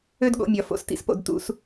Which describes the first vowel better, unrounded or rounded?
rounded